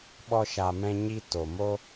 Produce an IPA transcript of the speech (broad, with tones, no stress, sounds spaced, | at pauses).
ɓ ɔ˧ ʃ a˨ m ɛ̃˧ ɲ i˧ t o˨ m o˦